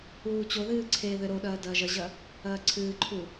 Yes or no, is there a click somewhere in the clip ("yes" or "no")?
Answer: yes